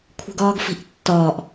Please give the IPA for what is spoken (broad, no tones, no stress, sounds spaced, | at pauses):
kʷʰ e̤ ɡ ɒː ɡ f i̤ ʔ tː ɒː ʔ